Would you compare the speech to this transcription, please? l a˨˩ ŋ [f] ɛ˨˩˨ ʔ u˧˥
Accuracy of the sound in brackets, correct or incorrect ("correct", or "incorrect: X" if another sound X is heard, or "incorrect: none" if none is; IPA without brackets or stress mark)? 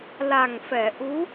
correct